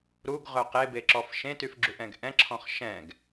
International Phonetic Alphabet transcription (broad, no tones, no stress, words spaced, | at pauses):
ɾuɡʁœ qebeǁɔf ʃẽtyfɡ͡ǁuʔɛ̃ɡ ʔɛ̃ǁʰɔ̃χ ʃɛ̃ɡ